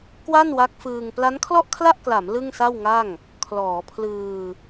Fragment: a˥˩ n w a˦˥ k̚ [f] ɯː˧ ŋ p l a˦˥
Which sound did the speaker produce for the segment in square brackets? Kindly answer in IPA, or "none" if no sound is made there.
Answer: f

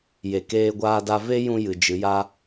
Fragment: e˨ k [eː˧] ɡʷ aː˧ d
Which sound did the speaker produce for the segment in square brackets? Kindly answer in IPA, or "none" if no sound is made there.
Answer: eː˧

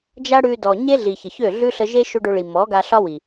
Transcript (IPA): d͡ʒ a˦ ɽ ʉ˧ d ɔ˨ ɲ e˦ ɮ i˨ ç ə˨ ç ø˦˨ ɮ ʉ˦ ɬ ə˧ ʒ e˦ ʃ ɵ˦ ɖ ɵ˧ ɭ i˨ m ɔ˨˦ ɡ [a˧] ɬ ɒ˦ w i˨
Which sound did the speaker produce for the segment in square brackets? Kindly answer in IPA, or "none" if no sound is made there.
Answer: a˧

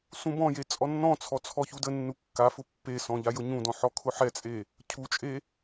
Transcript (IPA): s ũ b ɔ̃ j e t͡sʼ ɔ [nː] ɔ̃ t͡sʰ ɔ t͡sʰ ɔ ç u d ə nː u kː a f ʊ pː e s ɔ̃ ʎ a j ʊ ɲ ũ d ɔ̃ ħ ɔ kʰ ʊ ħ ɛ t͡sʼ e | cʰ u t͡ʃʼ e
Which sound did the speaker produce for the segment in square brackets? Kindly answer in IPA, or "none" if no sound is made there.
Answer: nː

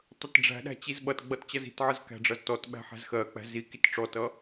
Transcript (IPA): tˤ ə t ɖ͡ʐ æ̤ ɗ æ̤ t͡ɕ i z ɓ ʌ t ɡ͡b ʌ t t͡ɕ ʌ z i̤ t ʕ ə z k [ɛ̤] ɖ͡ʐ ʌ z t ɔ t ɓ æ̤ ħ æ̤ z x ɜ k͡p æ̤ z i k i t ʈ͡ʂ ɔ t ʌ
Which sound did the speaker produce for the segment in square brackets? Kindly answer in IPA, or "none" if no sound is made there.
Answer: æ̤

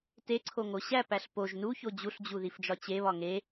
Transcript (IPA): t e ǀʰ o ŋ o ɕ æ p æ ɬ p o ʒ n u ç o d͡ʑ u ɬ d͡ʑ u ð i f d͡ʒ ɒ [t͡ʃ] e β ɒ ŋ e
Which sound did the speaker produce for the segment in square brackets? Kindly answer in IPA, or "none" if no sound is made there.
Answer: t͡ɕ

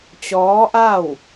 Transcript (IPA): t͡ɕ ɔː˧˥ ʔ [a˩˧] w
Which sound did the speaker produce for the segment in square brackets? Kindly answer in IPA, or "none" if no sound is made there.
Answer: a˥˨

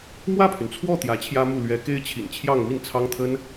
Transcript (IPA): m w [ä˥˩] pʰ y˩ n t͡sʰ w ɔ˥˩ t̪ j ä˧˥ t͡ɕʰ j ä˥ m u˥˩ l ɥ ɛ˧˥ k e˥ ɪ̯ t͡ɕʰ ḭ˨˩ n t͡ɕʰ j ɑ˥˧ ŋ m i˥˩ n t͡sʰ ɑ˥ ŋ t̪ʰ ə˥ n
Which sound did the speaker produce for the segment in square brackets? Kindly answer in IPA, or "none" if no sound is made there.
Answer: ä˥˩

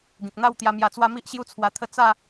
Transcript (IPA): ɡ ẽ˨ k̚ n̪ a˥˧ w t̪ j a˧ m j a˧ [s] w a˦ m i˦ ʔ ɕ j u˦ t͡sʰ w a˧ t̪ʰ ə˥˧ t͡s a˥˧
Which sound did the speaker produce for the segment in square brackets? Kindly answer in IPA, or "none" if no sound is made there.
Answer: t͡s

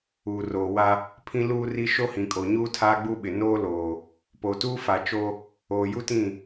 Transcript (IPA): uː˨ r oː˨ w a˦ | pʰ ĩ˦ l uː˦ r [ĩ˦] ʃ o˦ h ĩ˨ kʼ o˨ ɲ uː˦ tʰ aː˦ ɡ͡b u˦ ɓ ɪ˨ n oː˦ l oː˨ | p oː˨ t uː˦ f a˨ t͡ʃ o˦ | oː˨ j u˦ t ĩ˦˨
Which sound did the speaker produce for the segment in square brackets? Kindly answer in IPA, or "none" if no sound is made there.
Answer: i˦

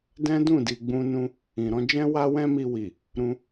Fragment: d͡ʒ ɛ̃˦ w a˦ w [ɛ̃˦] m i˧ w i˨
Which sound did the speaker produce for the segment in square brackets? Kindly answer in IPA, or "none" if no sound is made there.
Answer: ɛ̃˦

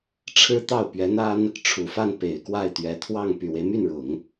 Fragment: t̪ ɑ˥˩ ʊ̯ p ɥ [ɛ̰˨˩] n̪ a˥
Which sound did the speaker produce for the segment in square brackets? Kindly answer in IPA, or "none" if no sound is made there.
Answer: ɛ˧˥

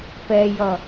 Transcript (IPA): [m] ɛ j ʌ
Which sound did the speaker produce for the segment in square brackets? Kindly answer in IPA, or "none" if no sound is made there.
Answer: p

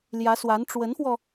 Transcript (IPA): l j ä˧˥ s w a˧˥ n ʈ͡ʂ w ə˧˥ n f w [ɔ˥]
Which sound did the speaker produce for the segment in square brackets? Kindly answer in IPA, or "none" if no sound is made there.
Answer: ɔ˧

